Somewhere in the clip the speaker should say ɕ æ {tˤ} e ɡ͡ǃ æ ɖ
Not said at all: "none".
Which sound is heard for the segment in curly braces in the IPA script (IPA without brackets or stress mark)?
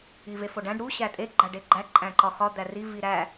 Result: tʼ